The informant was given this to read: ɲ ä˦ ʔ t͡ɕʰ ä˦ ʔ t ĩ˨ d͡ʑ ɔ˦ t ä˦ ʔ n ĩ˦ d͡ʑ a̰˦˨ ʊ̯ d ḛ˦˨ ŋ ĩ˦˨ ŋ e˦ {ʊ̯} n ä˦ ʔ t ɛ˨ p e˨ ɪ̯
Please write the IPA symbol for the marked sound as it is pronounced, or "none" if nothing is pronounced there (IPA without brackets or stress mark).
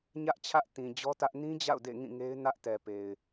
ɪ̯